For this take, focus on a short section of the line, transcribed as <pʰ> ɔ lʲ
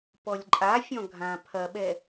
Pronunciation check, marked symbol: incorrect: p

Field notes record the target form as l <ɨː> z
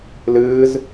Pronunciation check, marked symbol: correct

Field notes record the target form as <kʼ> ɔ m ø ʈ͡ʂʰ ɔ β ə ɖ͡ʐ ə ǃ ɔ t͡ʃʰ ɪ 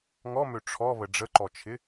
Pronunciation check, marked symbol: incorrect: ŋ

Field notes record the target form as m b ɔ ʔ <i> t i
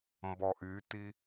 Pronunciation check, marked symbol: incorrect: y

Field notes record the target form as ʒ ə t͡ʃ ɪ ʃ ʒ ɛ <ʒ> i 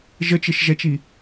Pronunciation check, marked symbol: incorrect: t͡ʃ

